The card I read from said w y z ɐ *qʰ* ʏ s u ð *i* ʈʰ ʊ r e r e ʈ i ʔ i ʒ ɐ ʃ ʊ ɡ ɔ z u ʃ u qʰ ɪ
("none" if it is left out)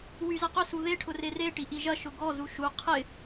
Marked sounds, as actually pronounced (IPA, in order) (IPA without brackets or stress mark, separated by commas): q, e